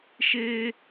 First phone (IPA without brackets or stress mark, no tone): ʃ